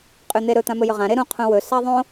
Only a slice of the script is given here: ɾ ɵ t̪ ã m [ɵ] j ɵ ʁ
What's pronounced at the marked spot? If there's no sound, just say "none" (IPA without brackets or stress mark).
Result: ɵ